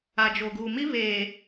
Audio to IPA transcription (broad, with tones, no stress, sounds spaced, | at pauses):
a˨ d͡ʒ o˨ ɡ uː˨ m i˦ β eː˨